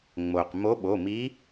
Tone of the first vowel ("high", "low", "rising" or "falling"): low